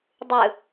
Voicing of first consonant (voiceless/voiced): voiced